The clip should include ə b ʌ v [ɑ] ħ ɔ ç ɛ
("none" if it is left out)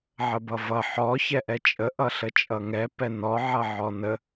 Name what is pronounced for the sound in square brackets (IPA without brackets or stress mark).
ʌ